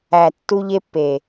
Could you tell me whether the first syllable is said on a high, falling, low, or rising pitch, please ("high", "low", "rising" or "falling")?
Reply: low